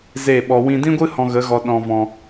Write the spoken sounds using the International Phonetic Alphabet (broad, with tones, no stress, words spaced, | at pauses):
ze˦˨ɓɔ˧ wĩ˧dĩ˦ɡʷɨ˦ hɔ̃˧ɣə˨˦ɣɔ˧ ɗɔ̃˧vɔ̃˧